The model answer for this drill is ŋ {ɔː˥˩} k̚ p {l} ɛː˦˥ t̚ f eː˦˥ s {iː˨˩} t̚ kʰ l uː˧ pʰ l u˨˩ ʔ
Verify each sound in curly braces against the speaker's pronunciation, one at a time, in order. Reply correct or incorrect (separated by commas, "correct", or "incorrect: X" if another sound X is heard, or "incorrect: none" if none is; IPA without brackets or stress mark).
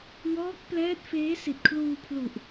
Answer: incorrect: ɔː˦˥, correct, incorrect: i˨˩